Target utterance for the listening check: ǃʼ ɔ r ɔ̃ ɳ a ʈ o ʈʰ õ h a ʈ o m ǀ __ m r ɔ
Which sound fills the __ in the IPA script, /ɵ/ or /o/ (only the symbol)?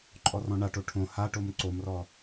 o